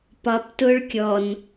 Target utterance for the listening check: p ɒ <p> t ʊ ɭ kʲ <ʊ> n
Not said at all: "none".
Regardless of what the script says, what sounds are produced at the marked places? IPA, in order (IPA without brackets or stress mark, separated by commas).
p, ɔ